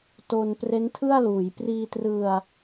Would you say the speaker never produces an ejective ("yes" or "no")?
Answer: yes